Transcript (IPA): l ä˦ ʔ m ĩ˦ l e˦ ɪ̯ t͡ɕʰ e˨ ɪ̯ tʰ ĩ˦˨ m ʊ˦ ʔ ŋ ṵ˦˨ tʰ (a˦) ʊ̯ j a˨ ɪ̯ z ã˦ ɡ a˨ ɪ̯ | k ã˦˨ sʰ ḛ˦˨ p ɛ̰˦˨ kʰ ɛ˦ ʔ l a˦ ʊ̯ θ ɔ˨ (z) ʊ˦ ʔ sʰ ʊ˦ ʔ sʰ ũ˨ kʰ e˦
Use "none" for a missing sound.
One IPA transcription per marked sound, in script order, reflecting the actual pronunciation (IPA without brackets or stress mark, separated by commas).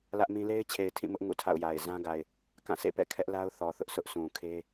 a̰˦˨, θ